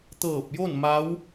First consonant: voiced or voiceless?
voiceless